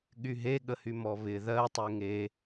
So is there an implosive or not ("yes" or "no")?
yes